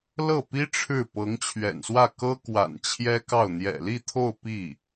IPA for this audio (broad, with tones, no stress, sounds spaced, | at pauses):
l ɤ˥˩ p i˥ ʈ͡ʂʰ ɻ̩˥˩ p ɤ˧˥ ŋ t͡ɕʰ ɥ ɛ̰˨˩ n s w ä˥˩ k ɤ˥ k w a̰˨˩ n t͡ɕʰ j ɛ˥ k ɑ˥˩ ʊ̯ n̪ j ɛ̰˨˩ l i˥˧ t̪ʰ o˥˧ ʊ̯ p i˥˩